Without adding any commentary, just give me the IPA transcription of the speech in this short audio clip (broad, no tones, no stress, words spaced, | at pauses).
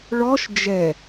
ɭɔʃ d͡ʒɛ